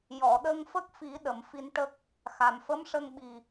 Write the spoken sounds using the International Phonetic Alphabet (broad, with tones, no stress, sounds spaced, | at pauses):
j ɔ˨˩˨ ɗ ə˧ ŋ f ə˦˥ k̚ f i˨˩˦ ɗ ə˨˩˨ m f i˧ n ʈ ə˦˥ k̚ | x a˨˩ m f ə˧˥ m ʂ ə˧ ŋ ɓ i˨˩